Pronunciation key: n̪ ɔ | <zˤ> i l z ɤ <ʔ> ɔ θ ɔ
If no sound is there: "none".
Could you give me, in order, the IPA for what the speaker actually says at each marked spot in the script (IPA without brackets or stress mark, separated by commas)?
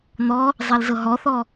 zˤ, ɦ